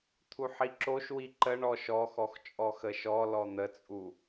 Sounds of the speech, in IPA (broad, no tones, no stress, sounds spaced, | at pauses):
t̪ʰ u ħ i ǁ o ʃ w i ǃ ə ɳ ɔ ʃ ɔ x ɔ x t͡ʃʼ ɔ x ə ʃ ɔ l ɔ n̪ ə t͡sʼ u